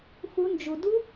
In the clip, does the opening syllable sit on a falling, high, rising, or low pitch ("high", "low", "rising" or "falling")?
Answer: rising